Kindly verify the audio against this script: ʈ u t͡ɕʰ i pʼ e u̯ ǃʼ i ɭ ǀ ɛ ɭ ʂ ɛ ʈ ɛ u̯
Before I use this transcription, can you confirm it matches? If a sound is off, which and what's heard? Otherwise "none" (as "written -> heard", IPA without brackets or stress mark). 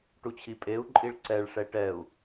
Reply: none